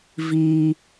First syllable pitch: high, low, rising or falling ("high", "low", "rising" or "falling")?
high